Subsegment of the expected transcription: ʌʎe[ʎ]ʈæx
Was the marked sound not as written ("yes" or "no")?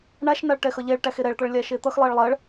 yes